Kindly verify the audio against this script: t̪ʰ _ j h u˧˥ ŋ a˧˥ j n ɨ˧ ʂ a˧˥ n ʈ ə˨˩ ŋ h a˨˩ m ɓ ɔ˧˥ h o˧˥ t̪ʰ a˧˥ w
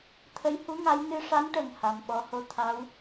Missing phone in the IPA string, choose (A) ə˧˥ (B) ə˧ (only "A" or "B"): A